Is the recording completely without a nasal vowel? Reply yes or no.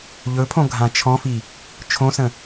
no